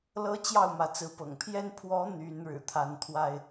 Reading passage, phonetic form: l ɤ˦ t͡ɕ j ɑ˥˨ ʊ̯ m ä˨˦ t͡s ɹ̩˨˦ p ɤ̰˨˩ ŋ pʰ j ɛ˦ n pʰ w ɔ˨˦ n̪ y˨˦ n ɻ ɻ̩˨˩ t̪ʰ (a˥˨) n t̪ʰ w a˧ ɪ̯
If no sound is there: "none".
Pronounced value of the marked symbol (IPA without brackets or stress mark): a˨˦